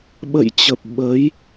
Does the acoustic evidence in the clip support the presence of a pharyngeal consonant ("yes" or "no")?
no